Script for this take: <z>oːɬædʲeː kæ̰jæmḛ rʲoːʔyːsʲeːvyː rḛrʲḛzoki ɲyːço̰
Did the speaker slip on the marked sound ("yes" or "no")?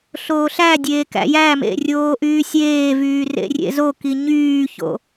yes